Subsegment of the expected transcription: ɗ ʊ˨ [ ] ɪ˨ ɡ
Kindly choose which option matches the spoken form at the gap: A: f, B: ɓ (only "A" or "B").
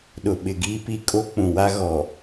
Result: B